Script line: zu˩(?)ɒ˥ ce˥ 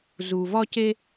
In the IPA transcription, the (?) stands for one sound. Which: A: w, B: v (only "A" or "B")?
B